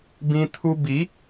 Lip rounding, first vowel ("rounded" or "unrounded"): unrounded